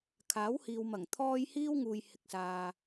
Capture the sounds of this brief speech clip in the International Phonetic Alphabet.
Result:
kʰaː˨˥whiː˨wmɐ˨˩ŋ t̪ʰɔː˥j hiː˥wŋuː˨j hɪ˨k̚saː˨

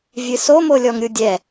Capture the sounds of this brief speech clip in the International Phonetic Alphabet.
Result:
vʲɨsomo lʲɔŋɾʲudʲɛ

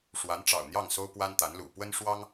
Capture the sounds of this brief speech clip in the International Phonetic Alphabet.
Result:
ʂwa˧˥nʈ͡ʂɑ̰˨˩ʊ̯n̪jɑ˥˩ŋ so˥ʊ̯pwa˥n t̪a˧˥nlṵ˨˩ pwə˥nʂwɑ˥ŋ

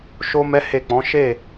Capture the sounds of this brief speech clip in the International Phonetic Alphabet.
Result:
ʃo˦mɛ˦he˦˨k͡pɔ̃˨˦ ʃe˦˨

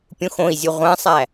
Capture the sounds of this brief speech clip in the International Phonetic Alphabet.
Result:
pʲũxõi̯zʲu ʁʷæ̃sˤæ

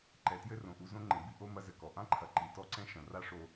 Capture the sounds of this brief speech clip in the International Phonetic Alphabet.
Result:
ǃɛ˨tjɘ˦ rõ˨ʔu˧ zõ˦ŋ͡ǃẽ˨bi˦ ʔo˦mɐ˦zɘ˨kɔ˨ ʔã˦ǃʰɐ˨ ǃi˨tɔ˦ǀɛ̃˦ʃɐ̃˨ ra˦ʂo˧

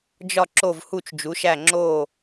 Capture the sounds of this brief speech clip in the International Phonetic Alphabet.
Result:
d͡ʒɒ˦˨ǁo˦˨v hu˦˨t͡ʃd͡ʒu˨˦ʃæ˦˨ ŋ͡ǁo˦˨

